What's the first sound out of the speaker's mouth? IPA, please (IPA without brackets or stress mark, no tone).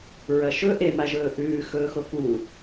ɹ